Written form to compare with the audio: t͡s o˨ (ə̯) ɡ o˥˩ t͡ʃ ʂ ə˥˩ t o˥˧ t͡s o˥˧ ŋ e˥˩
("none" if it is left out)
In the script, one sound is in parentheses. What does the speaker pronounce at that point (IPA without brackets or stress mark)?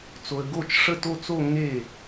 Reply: ə̯